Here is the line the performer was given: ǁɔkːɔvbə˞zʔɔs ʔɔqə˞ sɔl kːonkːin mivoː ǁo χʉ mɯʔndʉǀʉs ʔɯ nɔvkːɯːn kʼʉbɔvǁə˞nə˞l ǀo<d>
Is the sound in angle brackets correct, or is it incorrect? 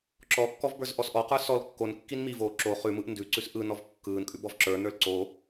incorrect